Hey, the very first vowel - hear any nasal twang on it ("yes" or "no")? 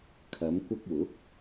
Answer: no